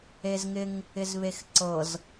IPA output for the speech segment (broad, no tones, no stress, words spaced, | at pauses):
ezŋɪŋ | ɪzβexǀɤz